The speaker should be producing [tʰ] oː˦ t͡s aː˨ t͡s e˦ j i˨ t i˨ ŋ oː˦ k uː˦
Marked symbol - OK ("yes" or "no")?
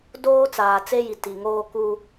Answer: no